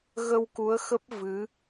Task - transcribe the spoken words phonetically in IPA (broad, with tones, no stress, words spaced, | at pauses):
ɣə˧wku˨˦ə̯xə˦˥p̚ vɨ˨˦